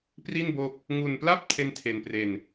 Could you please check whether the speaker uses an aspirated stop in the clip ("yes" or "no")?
yes